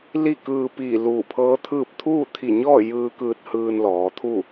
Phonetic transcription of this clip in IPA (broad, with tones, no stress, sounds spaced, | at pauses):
l i˥˨ k ɯː˧ p iː˧˩ l uː˧˩ pʰ ɤː˧˥ t̪ʰ ɯː˥˨ p̚ t̪ʰ uː˥˨ t̪ʰ i˧˩ ɲ ɔː˥˨ j ɯː˧ k ɯː˧ t̚ h ɯː˧ n l ɔː˩˧ t̪ʰ u˥˨